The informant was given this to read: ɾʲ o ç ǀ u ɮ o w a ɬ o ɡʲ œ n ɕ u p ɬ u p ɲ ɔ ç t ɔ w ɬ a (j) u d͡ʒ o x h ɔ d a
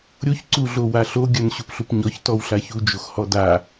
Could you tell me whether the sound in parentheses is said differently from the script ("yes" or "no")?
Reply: yes